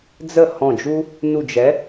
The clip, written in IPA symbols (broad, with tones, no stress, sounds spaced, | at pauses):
d͡z ə˥˩ h ɔ̃˧˩ d͡ʒ u˦ | n u˧˩ d͡ʒ ɛ˨˥